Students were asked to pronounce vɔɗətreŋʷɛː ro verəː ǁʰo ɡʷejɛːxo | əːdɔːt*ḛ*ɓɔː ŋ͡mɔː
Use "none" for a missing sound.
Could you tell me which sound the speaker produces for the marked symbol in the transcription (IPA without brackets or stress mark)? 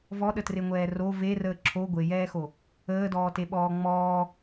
e